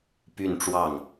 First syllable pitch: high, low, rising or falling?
falling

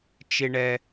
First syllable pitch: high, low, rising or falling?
high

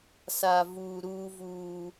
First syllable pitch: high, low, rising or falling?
low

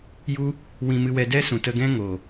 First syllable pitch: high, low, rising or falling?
high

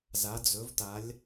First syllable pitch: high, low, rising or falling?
rising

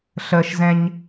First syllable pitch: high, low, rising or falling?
low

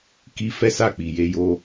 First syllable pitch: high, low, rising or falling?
high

